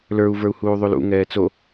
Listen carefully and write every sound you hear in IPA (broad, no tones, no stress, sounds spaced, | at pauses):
l ə˞ u̯ v ə˞ u̯ h uː ðˤ u l ṵ ŋ ɛː t͡s o